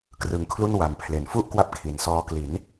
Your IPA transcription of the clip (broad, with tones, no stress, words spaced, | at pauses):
krɯ˩˦ŋkʰlu˥˩n wa˨˩mpʰle˨˩nfu˥˩ʔ kwa˦˥p̚kʰi˨˩nsɔː˧ kli˩˦n